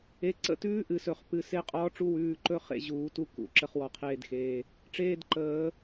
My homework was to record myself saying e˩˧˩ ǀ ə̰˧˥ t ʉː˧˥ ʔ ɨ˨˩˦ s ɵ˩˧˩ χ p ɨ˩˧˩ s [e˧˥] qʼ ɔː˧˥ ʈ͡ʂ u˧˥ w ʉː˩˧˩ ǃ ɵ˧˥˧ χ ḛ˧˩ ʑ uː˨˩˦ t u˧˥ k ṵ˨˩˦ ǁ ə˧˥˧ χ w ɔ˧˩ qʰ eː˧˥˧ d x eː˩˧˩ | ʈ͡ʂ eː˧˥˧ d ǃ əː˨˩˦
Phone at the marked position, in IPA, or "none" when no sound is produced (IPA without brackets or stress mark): e˧˥˧